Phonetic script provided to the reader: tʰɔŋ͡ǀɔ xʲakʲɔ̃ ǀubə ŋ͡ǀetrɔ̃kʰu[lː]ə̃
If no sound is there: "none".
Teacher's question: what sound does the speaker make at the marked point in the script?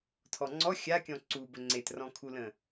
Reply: l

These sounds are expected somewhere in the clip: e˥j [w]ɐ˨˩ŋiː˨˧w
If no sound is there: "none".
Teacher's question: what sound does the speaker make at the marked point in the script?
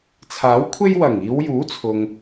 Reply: w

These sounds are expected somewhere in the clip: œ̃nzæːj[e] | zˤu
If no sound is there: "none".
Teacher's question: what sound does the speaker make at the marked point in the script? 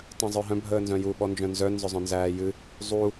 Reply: ɨ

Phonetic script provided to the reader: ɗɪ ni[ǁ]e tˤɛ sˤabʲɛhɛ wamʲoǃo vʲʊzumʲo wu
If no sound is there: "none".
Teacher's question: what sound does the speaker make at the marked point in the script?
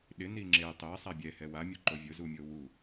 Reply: ŋ͡ǁ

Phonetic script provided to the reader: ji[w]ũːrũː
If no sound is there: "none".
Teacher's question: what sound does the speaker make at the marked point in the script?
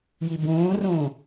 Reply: b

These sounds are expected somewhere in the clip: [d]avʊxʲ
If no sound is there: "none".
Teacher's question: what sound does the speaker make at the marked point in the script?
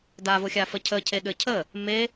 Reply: d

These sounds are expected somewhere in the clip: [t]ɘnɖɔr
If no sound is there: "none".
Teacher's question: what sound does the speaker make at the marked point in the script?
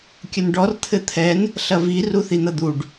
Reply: kʲ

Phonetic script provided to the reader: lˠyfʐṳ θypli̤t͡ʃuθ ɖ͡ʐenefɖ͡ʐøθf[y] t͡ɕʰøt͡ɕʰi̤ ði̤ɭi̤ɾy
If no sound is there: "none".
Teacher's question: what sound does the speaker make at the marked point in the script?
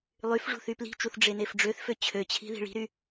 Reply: ø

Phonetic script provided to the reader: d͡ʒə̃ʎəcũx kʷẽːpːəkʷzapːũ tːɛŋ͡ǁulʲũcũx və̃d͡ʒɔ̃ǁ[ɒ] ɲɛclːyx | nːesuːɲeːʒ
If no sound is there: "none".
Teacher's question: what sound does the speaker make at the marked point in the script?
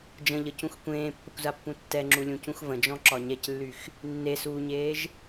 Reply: ɒ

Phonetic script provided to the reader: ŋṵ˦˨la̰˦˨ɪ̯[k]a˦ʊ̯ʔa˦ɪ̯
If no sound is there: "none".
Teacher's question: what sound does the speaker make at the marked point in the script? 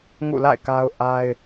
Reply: k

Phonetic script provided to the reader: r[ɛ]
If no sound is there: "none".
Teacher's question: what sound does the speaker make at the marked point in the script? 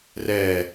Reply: ɛ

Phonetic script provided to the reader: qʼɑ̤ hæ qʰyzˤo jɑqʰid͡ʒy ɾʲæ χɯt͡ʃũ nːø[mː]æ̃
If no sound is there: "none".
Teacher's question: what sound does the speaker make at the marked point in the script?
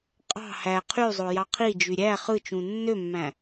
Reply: mː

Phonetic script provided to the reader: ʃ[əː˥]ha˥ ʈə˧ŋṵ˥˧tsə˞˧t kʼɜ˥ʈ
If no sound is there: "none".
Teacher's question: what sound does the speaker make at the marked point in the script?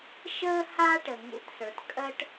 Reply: əː˥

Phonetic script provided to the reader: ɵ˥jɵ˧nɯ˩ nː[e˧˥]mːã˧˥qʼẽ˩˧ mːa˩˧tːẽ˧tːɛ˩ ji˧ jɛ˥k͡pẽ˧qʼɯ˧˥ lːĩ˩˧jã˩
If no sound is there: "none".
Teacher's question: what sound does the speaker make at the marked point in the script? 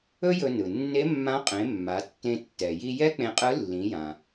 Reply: e˧˥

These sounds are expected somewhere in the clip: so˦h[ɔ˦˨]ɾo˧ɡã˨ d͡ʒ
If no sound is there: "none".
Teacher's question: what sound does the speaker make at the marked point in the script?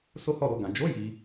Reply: ɔ˦˨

